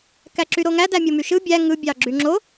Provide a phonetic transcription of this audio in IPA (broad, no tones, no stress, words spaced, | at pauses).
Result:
kæǁyɾoŋæ dæmʲomyʃɯ bʲæ ŋɯ bʲɑɡ͡ǁyŋ͡ǁo